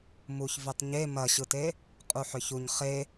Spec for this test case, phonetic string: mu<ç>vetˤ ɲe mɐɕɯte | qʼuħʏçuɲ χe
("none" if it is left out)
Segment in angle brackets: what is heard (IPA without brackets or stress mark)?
ç